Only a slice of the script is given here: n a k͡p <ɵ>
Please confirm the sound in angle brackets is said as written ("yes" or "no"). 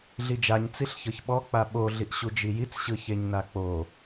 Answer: no